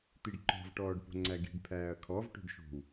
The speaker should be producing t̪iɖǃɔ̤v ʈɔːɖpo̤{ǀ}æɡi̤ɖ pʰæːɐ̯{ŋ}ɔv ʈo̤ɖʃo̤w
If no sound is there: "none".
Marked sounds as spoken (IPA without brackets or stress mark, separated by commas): ŋ͡ǀ, kʰ